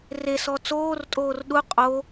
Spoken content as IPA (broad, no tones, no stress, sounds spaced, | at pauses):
r e s ɔ t͡s oː r tʼ oː r ɗ u qʼ o